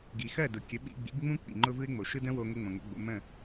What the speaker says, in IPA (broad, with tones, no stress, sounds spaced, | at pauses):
ɡ i˩ x ɜ˥˩ d ʊ˩ kʲ ə˩˥ ɓ ḭ˧ ɡ͡b ḭ˩˥ ɡ ŋ͡m ũ˥ k͡p ḭ˩ ŋ͡ǃ ʊ˥ v ɯ˥ ɪ̯ ŋ͡m o˩ ʃ ɯ˥ d ə̃˥ w o˧ ŋ ʊ˥ ŋ͡m õ˩ ŋ o̰˩˥ ɡ͡b o̰˩˥ m ə̃˥˩